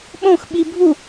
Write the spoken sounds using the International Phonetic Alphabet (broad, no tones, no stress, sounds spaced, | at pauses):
ɓ õ x ɓ i bʱ u